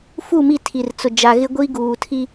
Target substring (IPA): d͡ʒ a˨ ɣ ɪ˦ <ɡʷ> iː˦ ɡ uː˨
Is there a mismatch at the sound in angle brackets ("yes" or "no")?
no